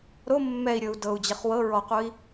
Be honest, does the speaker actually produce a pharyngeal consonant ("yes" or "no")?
no